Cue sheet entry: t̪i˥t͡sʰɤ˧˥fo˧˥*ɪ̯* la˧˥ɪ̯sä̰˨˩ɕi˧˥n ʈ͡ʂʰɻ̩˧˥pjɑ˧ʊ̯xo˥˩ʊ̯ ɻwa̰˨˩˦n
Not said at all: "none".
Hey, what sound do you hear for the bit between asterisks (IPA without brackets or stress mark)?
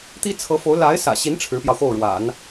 ʊ̯